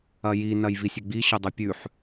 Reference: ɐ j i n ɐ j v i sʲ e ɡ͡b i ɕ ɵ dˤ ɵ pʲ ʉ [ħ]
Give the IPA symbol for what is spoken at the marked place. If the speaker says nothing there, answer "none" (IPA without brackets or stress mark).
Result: ħ